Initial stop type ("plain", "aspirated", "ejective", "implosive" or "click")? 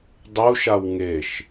plain